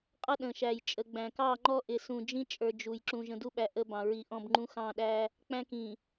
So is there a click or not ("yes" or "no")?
yes